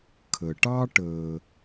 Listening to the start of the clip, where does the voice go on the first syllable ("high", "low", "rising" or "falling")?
low